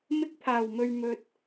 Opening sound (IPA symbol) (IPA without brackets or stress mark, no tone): m